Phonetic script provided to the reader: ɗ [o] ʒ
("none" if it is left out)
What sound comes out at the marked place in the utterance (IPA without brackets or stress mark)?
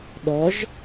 ɔ